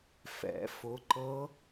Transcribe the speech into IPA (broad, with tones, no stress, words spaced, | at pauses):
fɛ̰˨˩˦ fʊ˨˥ǃɤ˦˥